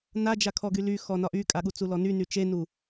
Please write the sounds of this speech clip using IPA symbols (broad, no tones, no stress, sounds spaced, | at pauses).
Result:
n a d͡ʒ a kʰ ɔ ɡ y l y x ɔ n ɒ ʔ y kʼ a ɠ u t͡s u l ɔ n y n y t͡ʃ e n u